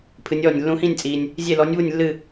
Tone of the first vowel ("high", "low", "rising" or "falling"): rising